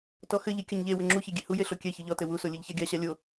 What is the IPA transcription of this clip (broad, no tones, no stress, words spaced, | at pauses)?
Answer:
tɔxɘʎi kʲɐɲʎewɘ ŋ͡ǁuçe ɡʲehuje ɬokʲɛçɨ ʎɔtɘ wuso lʲɨʎçaɡʲaɕa lʲo